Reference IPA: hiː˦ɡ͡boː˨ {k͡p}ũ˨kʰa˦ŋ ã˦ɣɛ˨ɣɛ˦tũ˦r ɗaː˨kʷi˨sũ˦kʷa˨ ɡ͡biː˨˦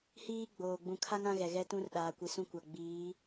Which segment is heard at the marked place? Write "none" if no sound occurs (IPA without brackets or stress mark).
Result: ɡ͡b